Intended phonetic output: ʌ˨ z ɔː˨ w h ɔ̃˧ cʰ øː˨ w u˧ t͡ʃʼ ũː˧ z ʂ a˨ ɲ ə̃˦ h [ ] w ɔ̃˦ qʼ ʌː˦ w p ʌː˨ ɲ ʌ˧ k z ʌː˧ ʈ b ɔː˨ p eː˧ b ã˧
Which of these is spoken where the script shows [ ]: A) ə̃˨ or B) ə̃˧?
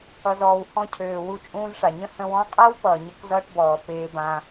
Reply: B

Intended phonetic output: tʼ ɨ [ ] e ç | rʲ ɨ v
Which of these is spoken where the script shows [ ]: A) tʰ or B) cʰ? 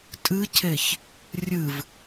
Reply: B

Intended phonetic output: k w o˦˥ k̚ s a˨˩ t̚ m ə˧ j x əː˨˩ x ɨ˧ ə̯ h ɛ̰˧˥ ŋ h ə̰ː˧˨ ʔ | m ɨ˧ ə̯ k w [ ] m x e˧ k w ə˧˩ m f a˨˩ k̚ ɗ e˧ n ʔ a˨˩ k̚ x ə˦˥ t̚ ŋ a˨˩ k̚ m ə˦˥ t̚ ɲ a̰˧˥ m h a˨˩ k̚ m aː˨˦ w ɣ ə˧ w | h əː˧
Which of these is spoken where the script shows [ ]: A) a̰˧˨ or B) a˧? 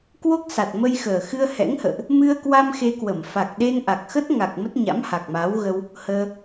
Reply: B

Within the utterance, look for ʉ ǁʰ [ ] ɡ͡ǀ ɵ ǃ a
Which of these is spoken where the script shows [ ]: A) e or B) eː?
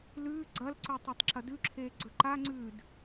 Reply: B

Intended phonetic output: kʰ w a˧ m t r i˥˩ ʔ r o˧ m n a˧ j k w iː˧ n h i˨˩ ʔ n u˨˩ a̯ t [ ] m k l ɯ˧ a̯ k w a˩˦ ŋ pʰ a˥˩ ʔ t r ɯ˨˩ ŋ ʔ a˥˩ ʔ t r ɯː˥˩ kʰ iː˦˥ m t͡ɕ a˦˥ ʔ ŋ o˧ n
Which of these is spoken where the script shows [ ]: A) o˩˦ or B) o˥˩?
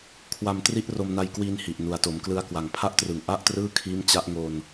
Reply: A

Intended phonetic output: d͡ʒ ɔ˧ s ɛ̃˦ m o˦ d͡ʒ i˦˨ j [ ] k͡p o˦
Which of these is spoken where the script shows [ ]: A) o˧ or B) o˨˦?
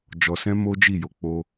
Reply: B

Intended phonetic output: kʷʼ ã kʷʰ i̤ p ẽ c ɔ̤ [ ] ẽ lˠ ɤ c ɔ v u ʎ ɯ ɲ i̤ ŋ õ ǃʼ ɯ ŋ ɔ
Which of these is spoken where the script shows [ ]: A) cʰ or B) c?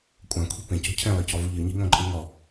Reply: A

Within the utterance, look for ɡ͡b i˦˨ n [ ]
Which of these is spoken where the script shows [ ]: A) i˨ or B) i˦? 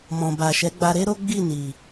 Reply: A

